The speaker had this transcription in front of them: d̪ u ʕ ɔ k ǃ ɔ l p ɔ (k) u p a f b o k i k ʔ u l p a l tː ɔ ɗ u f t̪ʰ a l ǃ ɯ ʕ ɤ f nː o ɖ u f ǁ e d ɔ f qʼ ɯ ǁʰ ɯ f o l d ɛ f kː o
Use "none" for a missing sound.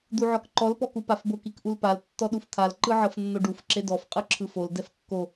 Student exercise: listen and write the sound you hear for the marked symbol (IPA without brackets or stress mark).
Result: k